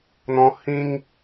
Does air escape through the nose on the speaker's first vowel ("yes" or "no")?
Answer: yes